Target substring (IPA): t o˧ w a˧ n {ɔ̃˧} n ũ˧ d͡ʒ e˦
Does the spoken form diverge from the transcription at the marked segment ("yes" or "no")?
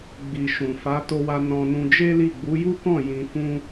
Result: no